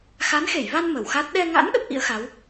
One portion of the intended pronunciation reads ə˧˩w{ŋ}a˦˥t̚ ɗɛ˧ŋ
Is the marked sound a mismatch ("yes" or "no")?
yes